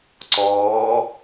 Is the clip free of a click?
no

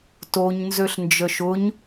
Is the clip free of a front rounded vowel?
no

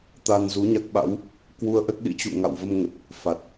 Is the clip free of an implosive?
no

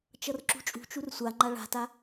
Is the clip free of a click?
no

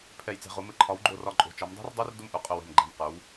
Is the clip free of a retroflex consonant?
yes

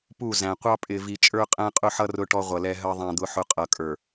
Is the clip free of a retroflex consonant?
no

